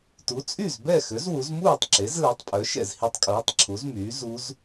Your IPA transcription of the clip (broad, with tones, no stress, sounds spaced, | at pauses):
t u˩˥ t͡sʼ y˥˩ z b ɛ˥˩ x ø˩˥ z w u˩˥ z m uː˥˩ tˤ ǁ e˩˥ z l ɛ˩˥ tˤ pʼ œ˩˥ ʃ ɛ̰˥˩ z h i˧˥ tˤ kʼ uː˩˥ tˤ ǁʰ u˩˥ z m yː˩˥ z u˧˥ z